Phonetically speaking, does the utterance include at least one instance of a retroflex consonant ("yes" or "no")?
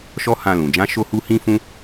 no